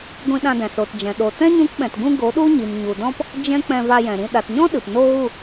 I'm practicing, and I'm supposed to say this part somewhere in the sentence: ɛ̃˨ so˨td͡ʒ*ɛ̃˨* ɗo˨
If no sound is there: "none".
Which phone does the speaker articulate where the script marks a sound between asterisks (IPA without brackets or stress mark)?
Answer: ɛ̃˨